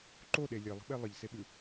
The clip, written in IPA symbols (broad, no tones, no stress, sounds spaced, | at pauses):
ǃ o ɗ e lʲ e lˠ ə̤ ɓ e lˠ ə ʎ s e ɓ ʉ